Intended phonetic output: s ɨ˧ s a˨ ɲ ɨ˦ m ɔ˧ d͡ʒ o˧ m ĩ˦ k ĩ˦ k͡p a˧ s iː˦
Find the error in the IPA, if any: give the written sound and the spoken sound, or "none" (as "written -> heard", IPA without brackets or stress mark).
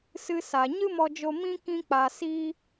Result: none